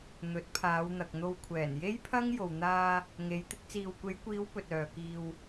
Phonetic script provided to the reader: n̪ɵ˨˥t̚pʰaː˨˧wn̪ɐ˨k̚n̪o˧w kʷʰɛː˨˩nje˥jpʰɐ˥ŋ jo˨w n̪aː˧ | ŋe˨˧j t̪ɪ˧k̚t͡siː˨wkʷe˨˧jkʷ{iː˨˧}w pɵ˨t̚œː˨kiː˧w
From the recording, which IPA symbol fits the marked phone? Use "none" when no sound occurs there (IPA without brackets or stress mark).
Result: iː˨˧